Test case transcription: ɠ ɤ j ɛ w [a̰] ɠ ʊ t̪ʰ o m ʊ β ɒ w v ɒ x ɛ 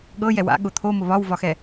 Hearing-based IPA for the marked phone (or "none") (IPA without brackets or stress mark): a̰